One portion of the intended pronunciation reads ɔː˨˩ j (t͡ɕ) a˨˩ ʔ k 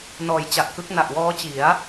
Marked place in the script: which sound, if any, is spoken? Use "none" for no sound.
t͡ɕ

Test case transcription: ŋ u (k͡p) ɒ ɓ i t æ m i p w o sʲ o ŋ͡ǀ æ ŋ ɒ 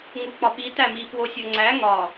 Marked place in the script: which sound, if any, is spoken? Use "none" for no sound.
k͡p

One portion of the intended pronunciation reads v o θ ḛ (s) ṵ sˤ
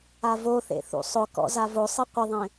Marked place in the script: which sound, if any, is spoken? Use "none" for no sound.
θ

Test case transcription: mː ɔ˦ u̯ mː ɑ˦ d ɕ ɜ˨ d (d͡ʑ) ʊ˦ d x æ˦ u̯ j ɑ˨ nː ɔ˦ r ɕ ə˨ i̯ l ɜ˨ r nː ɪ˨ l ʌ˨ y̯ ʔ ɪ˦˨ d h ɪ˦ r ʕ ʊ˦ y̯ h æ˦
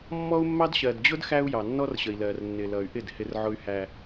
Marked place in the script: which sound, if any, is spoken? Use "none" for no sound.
d͡ʑ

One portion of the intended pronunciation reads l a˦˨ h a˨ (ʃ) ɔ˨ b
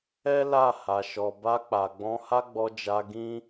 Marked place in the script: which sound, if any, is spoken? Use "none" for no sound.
ʃ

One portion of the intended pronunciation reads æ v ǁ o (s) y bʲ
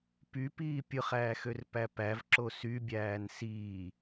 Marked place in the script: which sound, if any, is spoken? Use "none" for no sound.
s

